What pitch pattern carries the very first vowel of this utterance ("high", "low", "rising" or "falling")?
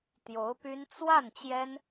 rising